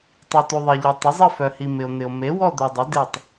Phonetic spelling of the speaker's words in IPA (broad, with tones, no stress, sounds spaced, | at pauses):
tˤ i˨ t u˨ ðˤ e˨ ʎ œ˨ tˤ ɪ˩˥ zˤ ɪ˦˨ f œ˨ h i˨ m ɪ˨ o̯ n̪ ɪ˨ o̯ m e˩˥ w ɔ˦˨ d̪ œ˨ dˤ ɪ˩˥ d e˦˨ tˤ